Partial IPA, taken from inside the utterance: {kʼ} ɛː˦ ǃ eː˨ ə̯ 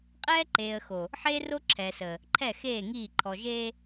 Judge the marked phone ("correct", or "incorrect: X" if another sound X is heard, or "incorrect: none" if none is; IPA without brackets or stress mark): incorrect: qʼ